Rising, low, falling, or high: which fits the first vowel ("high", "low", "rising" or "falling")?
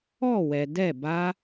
falling